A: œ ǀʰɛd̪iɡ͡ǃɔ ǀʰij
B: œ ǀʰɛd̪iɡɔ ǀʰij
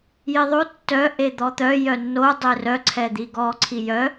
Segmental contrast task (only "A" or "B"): B